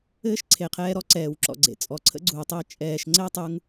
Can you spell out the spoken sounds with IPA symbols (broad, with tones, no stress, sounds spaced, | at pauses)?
ɘː˦ ʃ ǀʰ e˨ qʰ ɛː˧ ɾ ɔ˧ ǀ ɛː˨ w ǁ ɔ̰˨ ɡ͡ǀ ḛ˨ t͡sʼ ɔ˨ ǀʰ ə̰˧ ɡ͡ǀ uː˨ tˤ ə˧ e̯ t͡ʃʼ ɛː˨ ʃ ŋ͡ǀ ɘː˦ tˤ u˧ ŋ